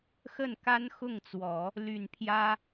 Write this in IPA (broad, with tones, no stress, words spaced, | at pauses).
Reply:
xə˥˩nka˥nxʊ˥˩ŋt͡swɔ˨˩˦ | ly˨˩n pʰjä˥